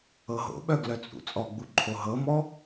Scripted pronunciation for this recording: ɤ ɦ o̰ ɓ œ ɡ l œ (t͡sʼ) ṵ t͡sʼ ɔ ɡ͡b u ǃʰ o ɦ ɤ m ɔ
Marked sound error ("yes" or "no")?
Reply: no